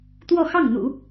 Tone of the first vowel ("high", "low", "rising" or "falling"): falling